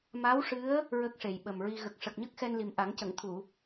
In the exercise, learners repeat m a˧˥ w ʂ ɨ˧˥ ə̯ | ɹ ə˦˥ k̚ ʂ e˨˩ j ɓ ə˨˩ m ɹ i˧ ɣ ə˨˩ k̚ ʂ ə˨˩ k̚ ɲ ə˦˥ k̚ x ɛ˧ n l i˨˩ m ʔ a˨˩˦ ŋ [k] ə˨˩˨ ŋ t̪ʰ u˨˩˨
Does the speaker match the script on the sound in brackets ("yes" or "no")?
no